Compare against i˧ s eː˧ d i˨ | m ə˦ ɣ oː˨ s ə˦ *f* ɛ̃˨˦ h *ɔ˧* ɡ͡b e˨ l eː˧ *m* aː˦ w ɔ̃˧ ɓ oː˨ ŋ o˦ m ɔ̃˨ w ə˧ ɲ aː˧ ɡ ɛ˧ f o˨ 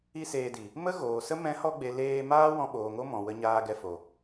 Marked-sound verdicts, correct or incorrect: incorrect: m, correct, correct

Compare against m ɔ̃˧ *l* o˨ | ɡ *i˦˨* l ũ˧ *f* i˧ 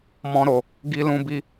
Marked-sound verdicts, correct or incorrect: incorrect: ɾ, incorrect: i˧, incorrect: b

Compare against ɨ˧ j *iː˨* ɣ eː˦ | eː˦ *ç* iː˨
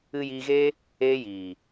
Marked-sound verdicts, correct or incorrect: incorrect: iː˧, incorrect: j

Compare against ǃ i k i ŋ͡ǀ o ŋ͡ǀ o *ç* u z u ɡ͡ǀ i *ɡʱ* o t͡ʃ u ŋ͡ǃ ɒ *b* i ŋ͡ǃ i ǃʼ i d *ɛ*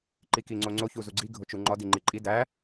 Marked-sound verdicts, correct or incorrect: correct, correct, incorrect: d, incorrect: æ

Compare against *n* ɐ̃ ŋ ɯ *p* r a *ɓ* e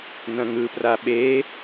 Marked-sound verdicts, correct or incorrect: correct, correct, correct

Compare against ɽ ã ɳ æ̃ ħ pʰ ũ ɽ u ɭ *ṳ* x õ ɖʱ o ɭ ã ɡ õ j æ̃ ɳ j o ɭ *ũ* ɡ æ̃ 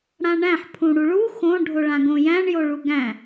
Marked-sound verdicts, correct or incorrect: incorrect: u, incorrect: u

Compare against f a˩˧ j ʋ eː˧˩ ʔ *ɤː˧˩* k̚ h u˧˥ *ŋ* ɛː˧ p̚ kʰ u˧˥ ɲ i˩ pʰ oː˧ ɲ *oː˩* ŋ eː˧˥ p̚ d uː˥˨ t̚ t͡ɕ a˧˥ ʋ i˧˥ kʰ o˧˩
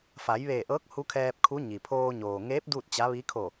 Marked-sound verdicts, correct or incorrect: incorrect: ɤː˧˥, incorrect: kʰ, correct

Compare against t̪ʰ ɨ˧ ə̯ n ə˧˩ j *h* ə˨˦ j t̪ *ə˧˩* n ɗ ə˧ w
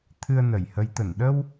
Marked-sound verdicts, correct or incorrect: correct, correct

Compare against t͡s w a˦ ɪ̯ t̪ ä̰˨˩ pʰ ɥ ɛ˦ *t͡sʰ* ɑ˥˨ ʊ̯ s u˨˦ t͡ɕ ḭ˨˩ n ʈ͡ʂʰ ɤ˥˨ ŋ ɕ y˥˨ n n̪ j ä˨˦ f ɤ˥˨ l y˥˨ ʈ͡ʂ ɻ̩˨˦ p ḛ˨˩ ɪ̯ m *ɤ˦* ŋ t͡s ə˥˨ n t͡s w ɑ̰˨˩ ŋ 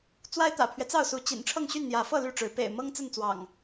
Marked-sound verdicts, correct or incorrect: incorrect: t͡s, correct

